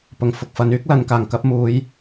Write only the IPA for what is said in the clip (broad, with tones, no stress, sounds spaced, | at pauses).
p ʊ˨ ŋ f ʊ˧ k̚ f ɐ˨˥ n yː˥ k̚ l ɐ˨˧ n k aː˨˩ ŋ k ɐ˨˥ p̚ m uː˨˥ j